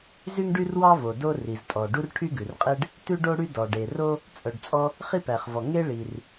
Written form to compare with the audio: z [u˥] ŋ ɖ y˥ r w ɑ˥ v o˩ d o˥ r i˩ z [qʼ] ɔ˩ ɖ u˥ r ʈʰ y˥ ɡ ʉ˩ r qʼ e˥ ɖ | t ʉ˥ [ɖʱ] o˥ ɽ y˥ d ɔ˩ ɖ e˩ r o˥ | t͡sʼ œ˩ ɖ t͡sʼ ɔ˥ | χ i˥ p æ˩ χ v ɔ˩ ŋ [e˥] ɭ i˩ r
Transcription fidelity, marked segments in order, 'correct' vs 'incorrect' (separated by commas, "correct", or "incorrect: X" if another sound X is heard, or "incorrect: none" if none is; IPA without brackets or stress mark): incorrect: y˥, incorrect: tʼ, incorrect: ɖ, correct